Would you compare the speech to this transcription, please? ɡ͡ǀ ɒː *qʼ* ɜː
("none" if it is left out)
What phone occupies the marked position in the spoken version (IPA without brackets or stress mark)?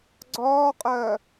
qʼ